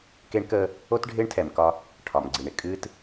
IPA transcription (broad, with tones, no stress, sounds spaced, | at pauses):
k e˦ ɳ k əː˦ | o˦ t ɖʱ ɪː˦ ɳ tʰ ɛ˨ m k ɒ˦ | ʈʰ ɒ˨ m ɡ͡ǀ i˨ ɳ ɪ˦ kʼ ɨː˦ t